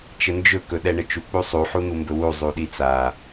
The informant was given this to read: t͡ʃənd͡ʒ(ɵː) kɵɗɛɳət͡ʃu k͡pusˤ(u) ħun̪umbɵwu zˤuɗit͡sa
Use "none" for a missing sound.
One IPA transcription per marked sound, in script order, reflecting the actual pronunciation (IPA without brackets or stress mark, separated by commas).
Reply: ɵ, u